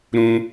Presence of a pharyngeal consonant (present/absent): absent